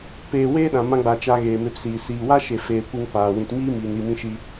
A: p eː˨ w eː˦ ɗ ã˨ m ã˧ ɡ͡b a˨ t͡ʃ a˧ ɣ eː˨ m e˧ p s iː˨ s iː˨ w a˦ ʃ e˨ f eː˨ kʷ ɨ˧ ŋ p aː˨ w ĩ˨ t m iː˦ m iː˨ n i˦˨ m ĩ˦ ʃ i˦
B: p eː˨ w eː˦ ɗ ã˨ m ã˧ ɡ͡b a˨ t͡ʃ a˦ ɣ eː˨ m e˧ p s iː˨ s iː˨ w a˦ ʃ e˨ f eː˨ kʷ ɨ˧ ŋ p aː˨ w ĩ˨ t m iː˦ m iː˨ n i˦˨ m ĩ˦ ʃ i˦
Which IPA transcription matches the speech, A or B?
A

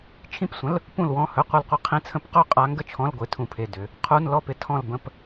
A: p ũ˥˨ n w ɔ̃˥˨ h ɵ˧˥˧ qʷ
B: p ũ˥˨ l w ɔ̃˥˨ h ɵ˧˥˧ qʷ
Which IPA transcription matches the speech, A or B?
B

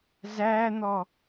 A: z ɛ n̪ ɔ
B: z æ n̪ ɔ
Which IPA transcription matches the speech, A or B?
B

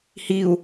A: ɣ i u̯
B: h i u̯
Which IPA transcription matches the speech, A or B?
B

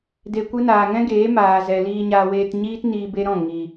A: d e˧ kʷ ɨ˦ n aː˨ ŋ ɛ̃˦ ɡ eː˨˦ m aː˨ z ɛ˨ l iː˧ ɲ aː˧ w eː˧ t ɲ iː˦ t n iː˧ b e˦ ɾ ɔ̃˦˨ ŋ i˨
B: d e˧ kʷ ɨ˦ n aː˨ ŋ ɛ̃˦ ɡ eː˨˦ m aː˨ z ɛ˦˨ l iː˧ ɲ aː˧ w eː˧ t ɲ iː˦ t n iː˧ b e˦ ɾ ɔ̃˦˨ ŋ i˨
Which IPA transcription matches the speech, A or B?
A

